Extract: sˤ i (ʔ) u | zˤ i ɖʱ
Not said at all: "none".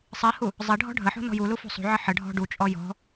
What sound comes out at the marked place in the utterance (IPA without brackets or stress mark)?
h